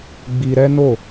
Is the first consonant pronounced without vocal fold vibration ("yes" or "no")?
no